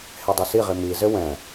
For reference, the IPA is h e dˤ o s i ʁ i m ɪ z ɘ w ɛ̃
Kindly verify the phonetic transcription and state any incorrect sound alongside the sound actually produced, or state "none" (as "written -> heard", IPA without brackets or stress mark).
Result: ɪ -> i